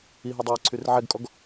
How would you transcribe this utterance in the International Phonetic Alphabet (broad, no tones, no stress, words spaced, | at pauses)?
iɦɛdˤiɹǀʰyr ʕɛɡkʼɔɡ